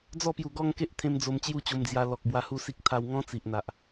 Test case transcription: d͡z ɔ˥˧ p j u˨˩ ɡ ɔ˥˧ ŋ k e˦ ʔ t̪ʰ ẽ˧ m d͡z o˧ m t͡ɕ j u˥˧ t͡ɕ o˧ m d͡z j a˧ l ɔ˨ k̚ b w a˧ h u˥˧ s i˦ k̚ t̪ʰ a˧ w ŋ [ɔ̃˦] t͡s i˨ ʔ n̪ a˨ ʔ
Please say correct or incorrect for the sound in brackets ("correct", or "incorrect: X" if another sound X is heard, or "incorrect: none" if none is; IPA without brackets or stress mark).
correct